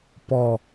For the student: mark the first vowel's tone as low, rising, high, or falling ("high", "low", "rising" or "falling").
low